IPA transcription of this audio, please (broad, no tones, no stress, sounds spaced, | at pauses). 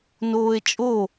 n oː e̯ t͡ʃʼ o